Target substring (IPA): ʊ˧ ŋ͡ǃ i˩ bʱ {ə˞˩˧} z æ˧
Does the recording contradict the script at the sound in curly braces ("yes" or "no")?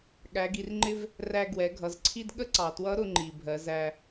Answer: yes